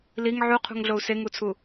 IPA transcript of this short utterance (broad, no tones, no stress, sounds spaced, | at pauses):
l i ŋ ʕ u qʰ ṳ ŋ ɮ o u̯ s e ŋ u t͡sʰ u